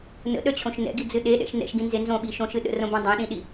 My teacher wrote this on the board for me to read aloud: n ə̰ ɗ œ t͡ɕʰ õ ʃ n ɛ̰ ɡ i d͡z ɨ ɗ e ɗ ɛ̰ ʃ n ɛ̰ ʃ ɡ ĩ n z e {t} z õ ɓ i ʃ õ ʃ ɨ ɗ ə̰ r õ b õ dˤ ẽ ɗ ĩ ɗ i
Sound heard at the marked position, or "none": n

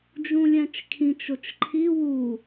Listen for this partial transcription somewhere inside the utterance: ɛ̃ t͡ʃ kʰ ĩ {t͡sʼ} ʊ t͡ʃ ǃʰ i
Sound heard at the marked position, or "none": t͡ʃ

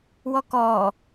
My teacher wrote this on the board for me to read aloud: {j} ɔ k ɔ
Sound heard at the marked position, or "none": w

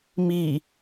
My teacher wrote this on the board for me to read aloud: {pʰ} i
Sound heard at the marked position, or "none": m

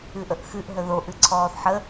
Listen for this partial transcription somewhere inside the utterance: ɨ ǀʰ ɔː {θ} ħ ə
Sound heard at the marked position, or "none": θ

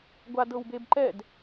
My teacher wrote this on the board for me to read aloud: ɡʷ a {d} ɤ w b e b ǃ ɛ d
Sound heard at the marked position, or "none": d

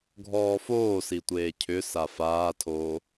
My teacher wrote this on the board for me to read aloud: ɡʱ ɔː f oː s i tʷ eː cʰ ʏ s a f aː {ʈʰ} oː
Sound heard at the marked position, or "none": tʰ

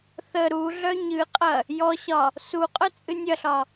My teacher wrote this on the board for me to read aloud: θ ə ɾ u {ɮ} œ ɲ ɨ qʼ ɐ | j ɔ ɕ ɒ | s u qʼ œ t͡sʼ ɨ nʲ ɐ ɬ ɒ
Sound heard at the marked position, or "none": ɮ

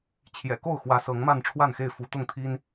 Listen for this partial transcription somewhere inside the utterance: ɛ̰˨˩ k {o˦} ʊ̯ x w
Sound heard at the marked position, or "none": o˥˨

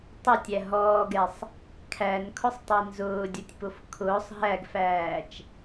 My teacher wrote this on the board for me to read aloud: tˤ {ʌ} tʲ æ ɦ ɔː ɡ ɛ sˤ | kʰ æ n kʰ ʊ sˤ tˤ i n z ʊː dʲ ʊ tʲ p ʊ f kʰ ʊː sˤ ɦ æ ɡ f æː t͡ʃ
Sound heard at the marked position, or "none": ʌ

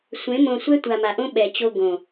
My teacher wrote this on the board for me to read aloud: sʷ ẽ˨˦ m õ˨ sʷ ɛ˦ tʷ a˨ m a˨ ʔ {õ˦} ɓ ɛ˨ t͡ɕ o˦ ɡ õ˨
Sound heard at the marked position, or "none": õ˦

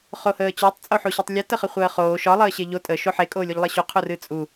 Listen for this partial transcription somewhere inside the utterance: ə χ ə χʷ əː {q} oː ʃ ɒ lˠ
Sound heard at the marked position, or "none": χ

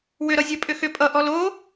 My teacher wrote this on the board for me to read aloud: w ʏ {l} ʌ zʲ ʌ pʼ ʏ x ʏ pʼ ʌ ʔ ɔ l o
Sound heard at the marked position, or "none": ɾ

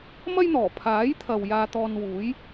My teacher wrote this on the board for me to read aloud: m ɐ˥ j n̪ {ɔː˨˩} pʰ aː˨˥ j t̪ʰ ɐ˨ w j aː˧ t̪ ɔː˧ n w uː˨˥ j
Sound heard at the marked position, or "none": ɔː˨˩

